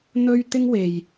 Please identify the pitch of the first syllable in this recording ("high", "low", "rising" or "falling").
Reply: high